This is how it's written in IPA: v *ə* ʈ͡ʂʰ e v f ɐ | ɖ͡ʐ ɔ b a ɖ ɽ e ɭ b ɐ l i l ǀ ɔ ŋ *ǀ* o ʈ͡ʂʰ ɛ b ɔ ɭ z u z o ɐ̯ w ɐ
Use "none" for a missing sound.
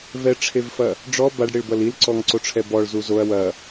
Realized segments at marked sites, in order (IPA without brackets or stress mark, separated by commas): ɛ, ǀ